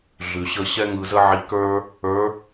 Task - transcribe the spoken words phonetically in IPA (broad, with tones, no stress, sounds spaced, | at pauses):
ɮ ʉ˩ ɕ ə˧ ɕ ɛ˥ ŋ ɯ˧ z ə˥ ʕ i˧˥ k ə˞˥ | ə˞˧˥